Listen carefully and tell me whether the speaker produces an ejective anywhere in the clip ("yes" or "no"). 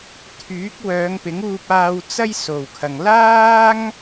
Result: no